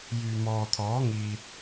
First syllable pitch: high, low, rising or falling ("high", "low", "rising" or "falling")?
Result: low